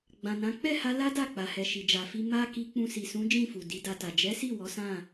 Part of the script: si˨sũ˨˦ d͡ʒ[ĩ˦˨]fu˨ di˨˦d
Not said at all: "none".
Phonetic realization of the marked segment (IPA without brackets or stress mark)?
ĩ˦˨